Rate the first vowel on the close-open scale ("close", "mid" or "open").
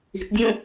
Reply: close